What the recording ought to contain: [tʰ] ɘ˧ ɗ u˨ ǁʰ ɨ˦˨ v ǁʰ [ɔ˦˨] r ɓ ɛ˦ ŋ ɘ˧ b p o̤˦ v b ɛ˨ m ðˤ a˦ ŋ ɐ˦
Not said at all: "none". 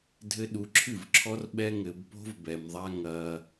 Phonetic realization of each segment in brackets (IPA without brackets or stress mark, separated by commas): dʱ, ɔ˦